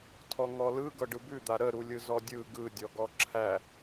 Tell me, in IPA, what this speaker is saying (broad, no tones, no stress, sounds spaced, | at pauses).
tʰ ɔ ŋ ɔ l ɯ ɡ ɤ ɖ ɯ b ʉ d̪ a ɾ ə ɾ u lʲ ɯ z ɔ dʲ ɯ ɡ ɯ dʲ ɔ ɡ ɔ ǁʰ æ